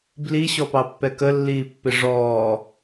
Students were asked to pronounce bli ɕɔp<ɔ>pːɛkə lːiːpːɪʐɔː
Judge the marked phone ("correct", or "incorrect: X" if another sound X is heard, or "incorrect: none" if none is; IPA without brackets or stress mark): incorrect: ɑ